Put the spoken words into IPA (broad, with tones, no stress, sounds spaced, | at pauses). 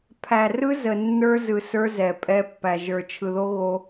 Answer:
pʰ æ˨ r ɯ˦ z ə˨ nː ə˞˦ z ɯ˨ s ə˞˦ z ɛ˨ pʼ ɛ˦ pː æ˨ ʒ ə˞˨ t͡ʃʰ ɯ˨ ð o˦ ɣ o˦